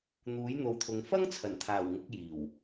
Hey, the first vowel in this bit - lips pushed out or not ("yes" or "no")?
yes